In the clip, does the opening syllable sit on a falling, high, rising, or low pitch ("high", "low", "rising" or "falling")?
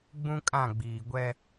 high